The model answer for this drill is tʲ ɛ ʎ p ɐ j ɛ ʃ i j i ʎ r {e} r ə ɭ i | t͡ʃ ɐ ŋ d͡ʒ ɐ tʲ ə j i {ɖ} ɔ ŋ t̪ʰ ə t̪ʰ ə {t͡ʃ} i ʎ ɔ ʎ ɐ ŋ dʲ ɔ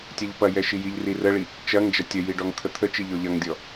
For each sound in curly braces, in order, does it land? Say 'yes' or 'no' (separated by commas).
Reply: no, yes, yes